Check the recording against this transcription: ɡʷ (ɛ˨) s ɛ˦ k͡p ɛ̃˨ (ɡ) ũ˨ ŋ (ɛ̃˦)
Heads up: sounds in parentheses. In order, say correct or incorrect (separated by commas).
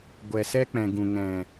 correct, correct, incorrect